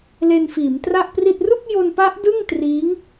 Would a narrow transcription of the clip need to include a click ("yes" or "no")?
no